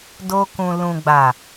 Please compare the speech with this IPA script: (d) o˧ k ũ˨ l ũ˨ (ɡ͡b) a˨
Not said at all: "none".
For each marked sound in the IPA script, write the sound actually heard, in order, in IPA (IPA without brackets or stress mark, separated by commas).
d, ɡ͡b